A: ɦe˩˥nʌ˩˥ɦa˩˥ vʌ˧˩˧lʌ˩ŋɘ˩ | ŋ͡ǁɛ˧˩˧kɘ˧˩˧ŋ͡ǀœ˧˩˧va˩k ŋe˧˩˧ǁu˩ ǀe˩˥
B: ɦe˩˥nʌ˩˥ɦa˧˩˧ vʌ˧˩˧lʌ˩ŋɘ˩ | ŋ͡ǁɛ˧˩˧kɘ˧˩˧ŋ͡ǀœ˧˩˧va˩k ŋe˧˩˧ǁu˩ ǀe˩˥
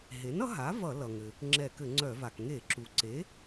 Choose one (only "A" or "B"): A